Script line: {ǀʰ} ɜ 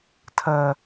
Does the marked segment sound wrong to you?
yes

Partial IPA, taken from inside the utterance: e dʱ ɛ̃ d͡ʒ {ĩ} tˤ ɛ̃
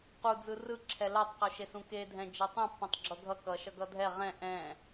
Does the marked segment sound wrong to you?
yes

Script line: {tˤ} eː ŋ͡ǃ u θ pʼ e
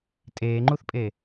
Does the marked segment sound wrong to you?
yes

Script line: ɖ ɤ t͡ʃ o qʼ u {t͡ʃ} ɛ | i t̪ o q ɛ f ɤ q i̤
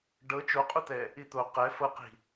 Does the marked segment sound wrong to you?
yes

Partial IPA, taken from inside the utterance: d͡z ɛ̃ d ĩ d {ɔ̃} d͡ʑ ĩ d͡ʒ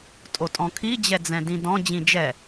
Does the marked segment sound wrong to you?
no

